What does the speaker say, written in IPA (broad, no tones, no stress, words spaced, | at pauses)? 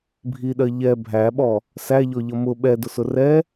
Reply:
bʱiɗɜ ʎɛ bʱæɓɔ | sæʎɔʎʌ mʊ ɓɛdʊsʊ rɛ